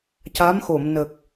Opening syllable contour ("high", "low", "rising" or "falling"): rising